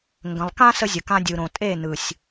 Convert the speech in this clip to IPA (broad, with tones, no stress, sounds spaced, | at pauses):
ŋ ɡ ə̃˨ lˠ k ã˦ s ə˦ zʲ ə˨ k ã˦ dʲ ɯ˨ ɾ õ˨ tʼ e˦˨ n ɯ˨ sʲ